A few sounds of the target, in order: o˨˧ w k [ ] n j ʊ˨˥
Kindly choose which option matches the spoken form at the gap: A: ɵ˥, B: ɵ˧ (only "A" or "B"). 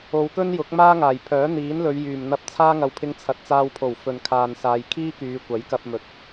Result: A